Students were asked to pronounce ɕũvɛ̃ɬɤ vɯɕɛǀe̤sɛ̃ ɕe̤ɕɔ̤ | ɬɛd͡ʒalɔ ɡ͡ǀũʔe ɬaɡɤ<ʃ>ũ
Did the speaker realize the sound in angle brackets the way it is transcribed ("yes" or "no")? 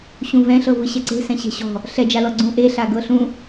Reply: no